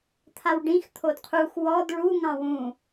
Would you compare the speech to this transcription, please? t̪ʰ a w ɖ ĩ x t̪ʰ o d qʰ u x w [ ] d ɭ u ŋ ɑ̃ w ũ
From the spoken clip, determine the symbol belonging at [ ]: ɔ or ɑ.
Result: ɔ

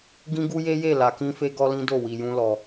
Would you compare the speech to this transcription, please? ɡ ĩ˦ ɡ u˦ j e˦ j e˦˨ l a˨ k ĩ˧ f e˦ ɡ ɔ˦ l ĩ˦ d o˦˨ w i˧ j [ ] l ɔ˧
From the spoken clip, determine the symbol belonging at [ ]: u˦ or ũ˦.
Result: ũ˦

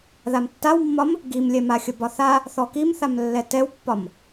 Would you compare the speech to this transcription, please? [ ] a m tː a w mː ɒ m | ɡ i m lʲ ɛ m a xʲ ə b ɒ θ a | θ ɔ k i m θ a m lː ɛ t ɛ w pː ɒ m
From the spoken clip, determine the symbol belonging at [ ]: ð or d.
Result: ð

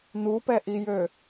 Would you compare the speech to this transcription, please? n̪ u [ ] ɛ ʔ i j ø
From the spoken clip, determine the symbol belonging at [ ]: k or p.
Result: p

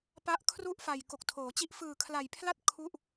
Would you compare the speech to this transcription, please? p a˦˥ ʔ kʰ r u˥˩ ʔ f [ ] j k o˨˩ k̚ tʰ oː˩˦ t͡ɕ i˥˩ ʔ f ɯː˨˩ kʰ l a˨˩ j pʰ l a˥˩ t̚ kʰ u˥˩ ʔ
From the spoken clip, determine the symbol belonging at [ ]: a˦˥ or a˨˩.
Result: a˨˩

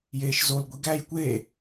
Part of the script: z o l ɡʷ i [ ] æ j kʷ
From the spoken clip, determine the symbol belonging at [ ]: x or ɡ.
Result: ɡ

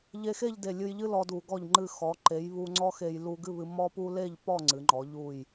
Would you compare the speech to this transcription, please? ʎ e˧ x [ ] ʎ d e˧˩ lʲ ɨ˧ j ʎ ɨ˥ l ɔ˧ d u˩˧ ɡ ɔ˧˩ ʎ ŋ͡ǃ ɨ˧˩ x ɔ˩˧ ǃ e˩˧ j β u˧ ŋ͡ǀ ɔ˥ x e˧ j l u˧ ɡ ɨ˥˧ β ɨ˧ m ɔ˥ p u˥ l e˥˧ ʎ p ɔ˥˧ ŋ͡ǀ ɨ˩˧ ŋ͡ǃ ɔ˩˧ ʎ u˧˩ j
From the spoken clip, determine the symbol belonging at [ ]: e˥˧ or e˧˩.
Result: e˥˧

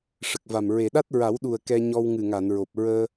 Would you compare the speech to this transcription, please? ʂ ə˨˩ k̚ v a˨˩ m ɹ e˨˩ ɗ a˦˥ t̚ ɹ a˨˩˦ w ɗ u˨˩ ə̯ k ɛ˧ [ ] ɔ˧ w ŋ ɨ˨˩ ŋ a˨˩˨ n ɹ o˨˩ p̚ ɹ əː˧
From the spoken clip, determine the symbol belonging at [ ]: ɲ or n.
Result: ɲ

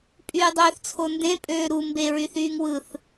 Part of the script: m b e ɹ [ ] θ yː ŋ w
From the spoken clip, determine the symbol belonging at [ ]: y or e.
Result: y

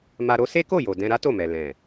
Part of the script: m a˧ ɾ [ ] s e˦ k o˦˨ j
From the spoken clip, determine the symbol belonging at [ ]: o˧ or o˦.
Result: o˦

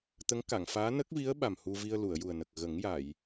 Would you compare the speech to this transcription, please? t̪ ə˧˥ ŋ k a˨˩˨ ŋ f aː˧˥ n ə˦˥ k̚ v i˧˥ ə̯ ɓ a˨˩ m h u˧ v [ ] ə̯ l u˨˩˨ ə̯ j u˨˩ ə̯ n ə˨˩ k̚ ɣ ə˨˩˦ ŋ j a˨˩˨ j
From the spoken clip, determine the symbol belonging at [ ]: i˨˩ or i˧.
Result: i˧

